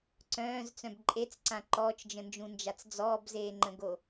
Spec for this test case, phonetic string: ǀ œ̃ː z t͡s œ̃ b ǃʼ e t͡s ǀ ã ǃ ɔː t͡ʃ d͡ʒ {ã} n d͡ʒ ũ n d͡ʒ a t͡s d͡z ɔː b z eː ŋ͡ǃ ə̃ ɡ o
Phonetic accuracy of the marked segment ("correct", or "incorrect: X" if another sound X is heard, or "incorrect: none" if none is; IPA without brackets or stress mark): incorrect: ə̃